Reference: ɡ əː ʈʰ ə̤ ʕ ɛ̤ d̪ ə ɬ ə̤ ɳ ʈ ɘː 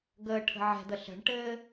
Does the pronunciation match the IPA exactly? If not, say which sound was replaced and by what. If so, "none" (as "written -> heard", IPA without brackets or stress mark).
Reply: none